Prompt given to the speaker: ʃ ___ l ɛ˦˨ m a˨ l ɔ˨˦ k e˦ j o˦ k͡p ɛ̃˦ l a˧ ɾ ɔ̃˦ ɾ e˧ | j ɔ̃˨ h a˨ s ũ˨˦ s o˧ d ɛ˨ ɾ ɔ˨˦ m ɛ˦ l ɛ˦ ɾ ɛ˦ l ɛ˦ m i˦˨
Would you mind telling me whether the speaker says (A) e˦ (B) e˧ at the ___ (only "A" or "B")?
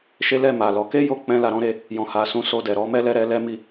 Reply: A